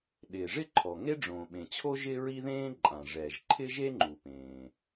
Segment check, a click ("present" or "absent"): present